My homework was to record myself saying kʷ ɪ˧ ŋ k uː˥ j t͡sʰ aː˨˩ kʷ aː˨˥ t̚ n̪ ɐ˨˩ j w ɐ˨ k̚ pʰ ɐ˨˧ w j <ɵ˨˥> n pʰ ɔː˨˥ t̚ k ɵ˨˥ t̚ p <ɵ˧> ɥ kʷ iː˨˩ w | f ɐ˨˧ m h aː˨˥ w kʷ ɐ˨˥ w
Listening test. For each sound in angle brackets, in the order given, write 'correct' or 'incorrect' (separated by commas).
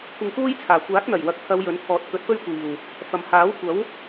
correct, incorrect